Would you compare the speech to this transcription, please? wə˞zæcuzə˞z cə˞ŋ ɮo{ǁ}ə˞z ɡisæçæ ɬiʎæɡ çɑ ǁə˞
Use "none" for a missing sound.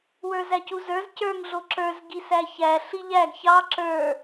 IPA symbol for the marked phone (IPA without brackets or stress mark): ǁ